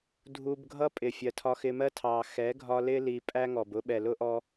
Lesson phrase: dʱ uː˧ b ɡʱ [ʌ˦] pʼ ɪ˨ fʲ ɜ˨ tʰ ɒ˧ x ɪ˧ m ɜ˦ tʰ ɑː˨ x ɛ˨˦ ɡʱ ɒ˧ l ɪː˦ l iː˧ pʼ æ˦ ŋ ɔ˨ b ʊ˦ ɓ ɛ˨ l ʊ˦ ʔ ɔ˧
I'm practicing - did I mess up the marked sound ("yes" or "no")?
no